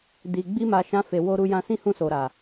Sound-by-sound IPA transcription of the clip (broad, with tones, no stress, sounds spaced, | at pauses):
d i˨ ɡ͡b i˧ m a˨ ʃ ã˧ f e˨ w o˧ ɾ u˧ j ã˧ s ĩ˦ h ũ˦˨ s o˨ ɾ a˨